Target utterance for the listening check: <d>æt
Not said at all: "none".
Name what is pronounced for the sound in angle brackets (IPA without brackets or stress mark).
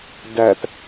d